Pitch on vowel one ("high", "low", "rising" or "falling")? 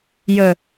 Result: low